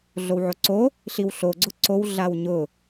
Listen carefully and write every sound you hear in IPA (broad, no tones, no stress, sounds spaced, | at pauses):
ɮ o w ʕ o ǀ o | ɬ i w ɬ o ɡ͡ǀ ʊ ǀ o w ɮ a w ɲ ʊ